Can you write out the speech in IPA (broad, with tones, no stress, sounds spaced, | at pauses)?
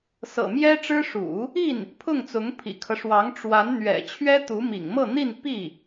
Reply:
s ɤ̰˨˩ m j ɛ˥ ʈ͡ʂ ɻ̩˥ ʂ ṵ˨˩˦ | i˥˩ n | pʰ ʊ˥˩ ŋ t͡s ʊ˧˥ ŋ pʰ ḭ˨˩ kʰ ɤ˦ ʂ w ɑ˧˥ ŋ ʈ͡ʂ w a˧˥ n n̪ ɥ ɛ̰˨˩ t͡ɕʰ ɥ ɛ˥ t̪ u˧˥ m ḭ˨˩ ŋ m ɤ˥˧ n̪ i˥˧ n p i˥˩